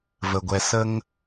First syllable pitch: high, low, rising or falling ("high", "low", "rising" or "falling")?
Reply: low